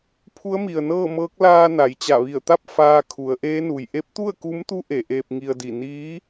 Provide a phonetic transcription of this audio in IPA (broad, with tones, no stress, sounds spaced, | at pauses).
pʰ u˧˥ ə̯ m i˩ ə̯ n ɤː˥˨ m ɤː˧˥ k̚ l aː˧ n a˩˧ j t͡ɕ a˧˩ ʋ i˧˩ ə̯ t̪ a˥˨ p̚ f aː˧ kʰ u˩˧ ə̯ ʔ eː˧˥ n u˩ j ʔ e˧˥ p̚ t̪ u˥˨ ə̯ k u˧˥ m t̪ u˧˥ ʔ e˩˧ ʔ eː˧ p̚ ŋ i˧ ə̯ d i˧˩ n iː˧˥